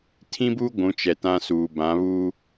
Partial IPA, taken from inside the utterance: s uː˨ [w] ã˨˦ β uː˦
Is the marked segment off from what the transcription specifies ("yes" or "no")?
yes